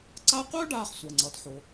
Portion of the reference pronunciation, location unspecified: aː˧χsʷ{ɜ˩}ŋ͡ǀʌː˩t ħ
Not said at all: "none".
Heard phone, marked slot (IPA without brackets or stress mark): ɜ˩